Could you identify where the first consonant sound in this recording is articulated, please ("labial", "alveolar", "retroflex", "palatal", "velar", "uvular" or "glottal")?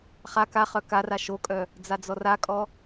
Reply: uvular